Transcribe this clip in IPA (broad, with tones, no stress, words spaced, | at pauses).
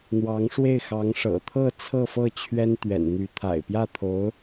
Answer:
n̪wɑ˧˥ŋʂwe˥˩ɪ̯ xɑ˧˥ŋ ʂɤ̰˨˩t̪ʰɤ˥˧ t͡sʰɤ˥˧fɤ˥˩ t͡ɕʰɥɛ˥nt̪ɥɛ̰˨˩nn̪y˧˥ t̪ʰa̰˨˩ɪ̯pjä˥˩t̪ʰo˧˥ʊ̯